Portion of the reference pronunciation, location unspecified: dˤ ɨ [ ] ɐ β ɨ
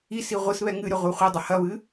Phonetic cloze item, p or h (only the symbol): h